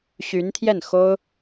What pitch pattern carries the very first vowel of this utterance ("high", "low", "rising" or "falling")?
rising